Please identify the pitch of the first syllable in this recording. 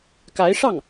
rising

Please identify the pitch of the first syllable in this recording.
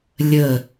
falling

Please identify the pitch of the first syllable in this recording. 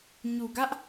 low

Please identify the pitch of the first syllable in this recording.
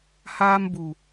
high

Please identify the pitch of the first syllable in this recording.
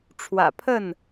low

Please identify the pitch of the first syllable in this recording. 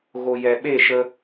low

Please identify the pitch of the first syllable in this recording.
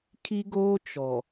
high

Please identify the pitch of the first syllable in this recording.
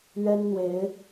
high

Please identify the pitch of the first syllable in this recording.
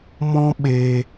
high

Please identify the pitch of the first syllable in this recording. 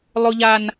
high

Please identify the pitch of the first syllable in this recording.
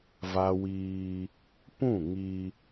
high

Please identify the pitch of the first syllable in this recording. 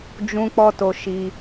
high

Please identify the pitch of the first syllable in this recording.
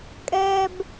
high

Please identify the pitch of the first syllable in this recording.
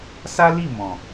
high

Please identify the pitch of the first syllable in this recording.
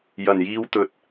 low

